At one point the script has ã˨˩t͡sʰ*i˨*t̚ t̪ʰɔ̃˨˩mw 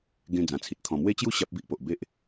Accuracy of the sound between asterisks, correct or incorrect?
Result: correct